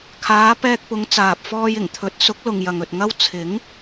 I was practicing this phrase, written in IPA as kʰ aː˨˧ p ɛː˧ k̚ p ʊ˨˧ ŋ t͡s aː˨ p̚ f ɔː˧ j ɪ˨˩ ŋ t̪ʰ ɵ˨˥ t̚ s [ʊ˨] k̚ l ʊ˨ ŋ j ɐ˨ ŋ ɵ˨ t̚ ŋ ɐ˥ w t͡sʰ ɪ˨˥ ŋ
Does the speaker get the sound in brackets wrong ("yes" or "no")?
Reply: yes